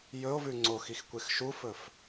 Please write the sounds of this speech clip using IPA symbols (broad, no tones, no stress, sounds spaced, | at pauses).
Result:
j ɵ o̯ v ʉ ŋ͡ǀ o x i x kʷ e x ʃ u f ɵ f